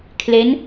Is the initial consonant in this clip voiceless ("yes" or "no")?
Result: yes